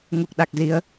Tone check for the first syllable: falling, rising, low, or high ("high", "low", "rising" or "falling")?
low